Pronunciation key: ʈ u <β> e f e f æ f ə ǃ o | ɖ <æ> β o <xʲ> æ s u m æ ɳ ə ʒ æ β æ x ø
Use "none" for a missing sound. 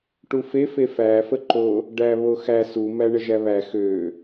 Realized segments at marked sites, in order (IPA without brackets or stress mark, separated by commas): f, æ, x